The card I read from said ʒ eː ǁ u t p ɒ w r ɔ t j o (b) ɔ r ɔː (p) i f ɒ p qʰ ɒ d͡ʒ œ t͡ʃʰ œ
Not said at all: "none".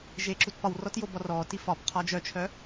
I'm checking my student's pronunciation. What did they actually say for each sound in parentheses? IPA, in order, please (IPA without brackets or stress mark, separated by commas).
b, t